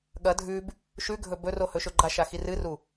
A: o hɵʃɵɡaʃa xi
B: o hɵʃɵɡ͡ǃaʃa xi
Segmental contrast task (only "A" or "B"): B